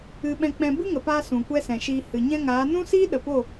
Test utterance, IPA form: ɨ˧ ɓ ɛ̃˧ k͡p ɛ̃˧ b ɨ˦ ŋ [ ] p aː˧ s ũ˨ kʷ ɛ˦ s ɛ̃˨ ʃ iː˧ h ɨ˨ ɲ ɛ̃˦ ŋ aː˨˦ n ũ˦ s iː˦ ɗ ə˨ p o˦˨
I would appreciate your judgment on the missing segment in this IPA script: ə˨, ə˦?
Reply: ə˨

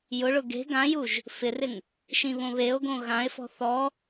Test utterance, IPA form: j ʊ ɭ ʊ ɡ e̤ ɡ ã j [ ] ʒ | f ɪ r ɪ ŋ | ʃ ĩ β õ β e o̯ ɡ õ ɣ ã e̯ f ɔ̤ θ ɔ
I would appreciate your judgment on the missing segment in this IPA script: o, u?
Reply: u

